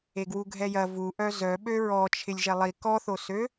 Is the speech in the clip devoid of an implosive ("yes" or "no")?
no